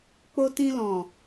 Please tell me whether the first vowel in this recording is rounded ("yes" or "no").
yes